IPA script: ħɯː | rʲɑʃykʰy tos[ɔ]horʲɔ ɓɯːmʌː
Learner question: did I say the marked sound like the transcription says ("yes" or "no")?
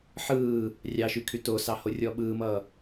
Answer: no